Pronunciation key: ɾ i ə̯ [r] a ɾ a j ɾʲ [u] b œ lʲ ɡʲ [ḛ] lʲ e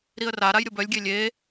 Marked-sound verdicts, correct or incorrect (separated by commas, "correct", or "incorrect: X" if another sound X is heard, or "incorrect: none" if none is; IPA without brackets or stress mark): correct, incorrect: o, incorrect: e